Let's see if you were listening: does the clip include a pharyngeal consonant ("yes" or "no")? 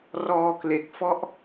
no